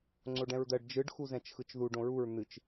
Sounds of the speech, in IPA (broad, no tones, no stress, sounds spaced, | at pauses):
ŋ͡ǀ o ɖ ɛ̃ ɹ d̪ ɜ ɖ d͡ʒ ɯ ɖ x u z ɛ̃ t͡ʃ x ɯ t͡ʃ ð u ɖ õ ɹ u ɹ n̪ ɨ t͡ʃ